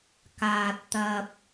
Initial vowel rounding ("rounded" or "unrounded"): unrounded